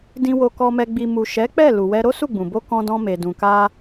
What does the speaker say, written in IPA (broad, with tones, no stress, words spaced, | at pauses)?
dĩ˨wo˨kɔ˨mɛ˨ ɡ͡bi˨mu˨ ʃɛ˨˦k͡pɛ˦˨ lu˨wɛ˧ ɾo˦su˦˨ɡ͡bũ˨bo˧ kɔ̃˧dɔ̃˧me˨dũ˨ ka˧